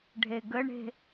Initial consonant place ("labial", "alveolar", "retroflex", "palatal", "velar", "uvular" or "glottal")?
retroflex